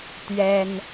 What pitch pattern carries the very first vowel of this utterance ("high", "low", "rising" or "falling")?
high